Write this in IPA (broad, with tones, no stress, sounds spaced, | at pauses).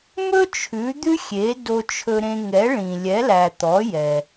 m ɵ˥ t͡ʃʰ ʉ˩˥ d̪ ʉ˥ xʲ e˩˥ d o˧ t͡ʃʰ ɵ˧ ɾ ẽ˧ ŋ ɛ˩˥ ɭ ĩ˩ lʲ ɛ˩˥ l æ˩ t̪ ɔ˩˥ j ɛ˩